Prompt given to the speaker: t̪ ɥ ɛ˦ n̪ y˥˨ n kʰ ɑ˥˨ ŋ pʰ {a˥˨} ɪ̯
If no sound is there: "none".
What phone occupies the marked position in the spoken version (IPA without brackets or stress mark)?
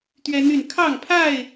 a˥˨